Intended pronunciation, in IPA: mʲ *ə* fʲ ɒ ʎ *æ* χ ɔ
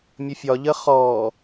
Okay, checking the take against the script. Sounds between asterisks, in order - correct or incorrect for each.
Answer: correct, incorrect: ə

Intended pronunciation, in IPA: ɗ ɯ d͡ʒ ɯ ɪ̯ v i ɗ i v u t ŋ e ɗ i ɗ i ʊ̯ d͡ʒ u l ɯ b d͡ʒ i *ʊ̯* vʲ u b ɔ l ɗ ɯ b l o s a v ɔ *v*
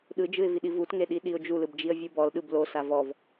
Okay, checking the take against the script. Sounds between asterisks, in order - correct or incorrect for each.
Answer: incorrect: ə̯, correct

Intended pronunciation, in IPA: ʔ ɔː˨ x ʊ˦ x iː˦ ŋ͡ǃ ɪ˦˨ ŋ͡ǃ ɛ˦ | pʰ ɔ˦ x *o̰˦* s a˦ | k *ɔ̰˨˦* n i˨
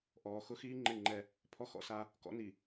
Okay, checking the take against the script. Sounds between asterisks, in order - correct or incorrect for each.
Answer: incorrect: ɔ̰˦, correct

